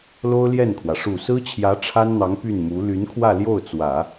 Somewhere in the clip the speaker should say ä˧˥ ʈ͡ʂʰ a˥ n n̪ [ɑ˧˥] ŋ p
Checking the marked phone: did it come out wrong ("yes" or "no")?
no